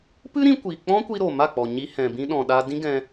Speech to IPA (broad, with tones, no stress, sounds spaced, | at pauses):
p ɨ˦ ɾ ĩ˧ kʷ iː˨ k͡p ɔ̃˦ kʷ i˧ ɾ o˨ m a˦˨ k͡p ɔ˨ ɲ i˧ h ɛ̃˨ b ĩ˧ ɗ ɔ̃˨ ɗ a˧ d ĩ˦ ɡ ɛ̃˧